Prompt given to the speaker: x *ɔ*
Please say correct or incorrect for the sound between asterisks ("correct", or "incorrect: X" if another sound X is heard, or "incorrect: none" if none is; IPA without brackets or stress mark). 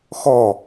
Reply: correct